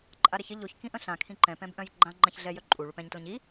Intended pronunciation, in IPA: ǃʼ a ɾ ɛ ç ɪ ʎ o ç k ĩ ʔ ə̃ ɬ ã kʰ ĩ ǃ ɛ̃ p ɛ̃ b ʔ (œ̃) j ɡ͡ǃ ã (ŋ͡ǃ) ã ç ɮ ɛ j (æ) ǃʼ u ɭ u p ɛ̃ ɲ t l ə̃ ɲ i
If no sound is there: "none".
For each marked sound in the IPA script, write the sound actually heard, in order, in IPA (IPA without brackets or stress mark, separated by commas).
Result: œ̃, ŋ͡ǃ, œ